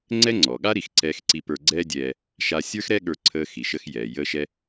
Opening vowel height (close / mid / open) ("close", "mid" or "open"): mid